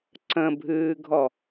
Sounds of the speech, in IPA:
ǀ ə̃ bʱ ɨː ɡʱ ɔ

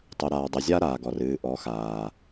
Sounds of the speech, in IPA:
tˤ ɵ˨ ɾ aː˨ dˤ ə˨ zʲ a˦ ɾ aː˨ ɡ ɔ˨ r ɨː˨ ʔ ɔ˨˦ x aː˨

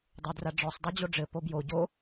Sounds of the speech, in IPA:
dˤ o d r a ɖ͡ʐ ɔ sˤ dˤ u d͡ʑ o ɖ͡ʐ ɘ p o b j o ɟ o

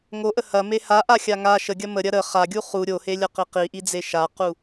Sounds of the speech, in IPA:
ŋ o ʔ ə h ɐ m e h a ʔ a xʲ a ŋ a ʃ ə ɡʲ ɐ m ə ɾʲ ɐ ɾ ə χ a ɡʲ u χ u ɾʲ o h e lʲ ɐ q i q i ʔ i d͡z e ʃ a q u

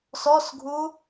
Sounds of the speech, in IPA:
s ɔ s ɡʱ u

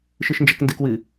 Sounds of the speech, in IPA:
ʃ ɨ ʃ n d͡ʒ ɛ k n d ɨ k w ɨ

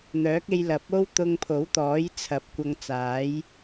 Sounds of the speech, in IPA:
n̪ œː˨˥ k̚ e˧ j l ɐ˨˥ p̚ o˥ w t̪ ʊ˧ ŋ pʰ o˨˥ w t̪ ɔː˨˥ j t͡sʰ ɐ˨˥ p̚ kʷ ɐ˧ ŋ t͡s aː˨˥ j

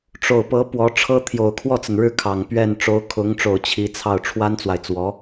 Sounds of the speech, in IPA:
ʈ͡ʂ o˨˩ ʊ̯ p ɤ˧˥ p w ɔ˧˥ ʈ͡ʂʰ ɤ˥ t̪ʰ j o˨˩ ʊ̯ kʰ w ɔ˥˩ t͡s ə˩ n ɻ ɻ̩˥˩ kʰ ɑ˨˩ ŋ p ɥ ɛ˥˩ n ʈ͡ʂ o˧˥ ʊ̯ kʰ ʊ˧˥ ŋ ʈ͡ʂ o˨˩ ʊ̯ t͡ɕʰ i˧˥ t͡sʰ ɑ˥˩ ʊ̯ ʈ͡ʂʰ w a˥ n t͡s w a˨ ɪ̯ t͡s w ɔ˧˥

